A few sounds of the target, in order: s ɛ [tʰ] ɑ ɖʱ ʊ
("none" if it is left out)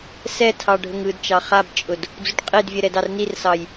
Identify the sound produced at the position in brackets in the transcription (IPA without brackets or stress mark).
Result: tʰ